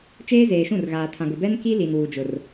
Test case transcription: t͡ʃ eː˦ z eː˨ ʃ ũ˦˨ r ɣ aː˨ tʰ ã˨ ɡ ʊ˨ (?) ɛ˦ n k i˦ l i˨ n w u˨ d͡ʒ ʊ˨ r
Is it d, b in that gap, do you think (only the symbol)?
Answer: b